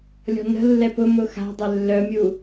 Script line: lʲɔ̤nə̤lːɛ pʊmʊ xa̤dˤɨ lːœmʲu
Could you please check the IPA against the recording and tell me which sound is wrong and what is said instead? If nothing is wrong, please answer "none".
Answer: ɨ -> ɛ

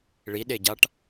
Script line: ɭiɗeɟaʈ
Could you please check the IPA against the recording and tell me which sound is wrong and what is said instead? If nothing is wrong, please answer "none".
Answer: none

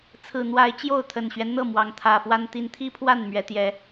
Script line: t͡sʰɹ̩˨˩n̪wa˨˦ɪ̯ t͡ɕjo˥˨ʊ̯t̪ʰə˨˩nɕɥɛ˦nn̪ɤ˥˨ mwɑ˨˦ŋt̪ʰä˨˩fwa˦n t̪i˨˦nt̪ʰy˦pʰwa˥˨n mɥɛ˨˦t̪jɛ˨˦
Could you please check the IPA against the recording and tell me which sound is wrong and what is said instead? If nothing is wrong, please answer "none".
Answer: y˦ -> i˦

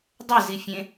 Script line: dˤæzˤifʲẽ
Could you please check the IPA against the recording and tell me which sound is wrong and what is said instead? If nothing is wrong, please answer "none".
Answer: zˤ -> z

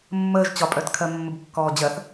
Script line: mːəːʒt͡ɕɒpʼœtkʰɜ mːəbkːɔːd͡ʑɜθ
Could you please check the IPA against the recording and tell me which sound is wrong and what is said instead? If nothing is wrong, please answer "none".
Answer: none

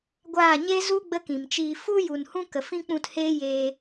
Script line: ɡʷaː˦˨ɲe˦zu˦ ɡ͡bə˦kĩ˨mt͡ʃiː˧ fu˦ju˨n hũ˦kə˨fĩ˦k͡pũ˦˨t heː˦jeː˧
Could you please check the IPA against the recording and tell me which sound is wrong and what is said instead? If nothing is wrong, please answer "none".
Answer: none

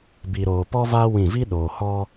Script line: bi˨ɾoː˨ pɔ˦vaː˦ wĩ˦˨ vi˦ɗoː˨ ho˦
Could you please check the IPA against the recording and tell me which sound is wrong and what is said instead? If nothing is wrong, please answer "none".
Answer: o˦ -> ɔ˦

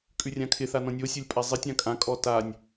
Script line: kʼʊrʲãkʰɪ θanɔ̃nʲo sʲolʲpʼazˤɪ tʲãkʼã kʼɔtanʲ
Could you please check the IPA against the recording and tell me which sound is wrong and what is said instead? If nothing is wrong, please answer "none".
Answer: ʊ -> ʉ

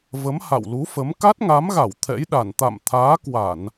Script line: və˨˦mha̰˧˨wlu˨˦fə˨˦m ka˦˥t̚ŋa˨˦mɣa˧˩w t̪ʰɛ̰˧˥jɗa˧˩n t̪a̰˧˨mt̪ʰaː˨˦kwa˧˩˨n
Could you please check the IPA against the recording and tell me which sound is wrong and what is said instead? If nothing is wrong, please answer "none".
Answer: none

